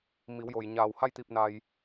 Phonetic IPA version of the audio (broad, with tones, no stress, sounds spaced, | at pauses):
m i˩˧ w j o˩ j ɲ aː˧˩ w h a˥˨ j t̪ i˧˩ p̚ n a˩ j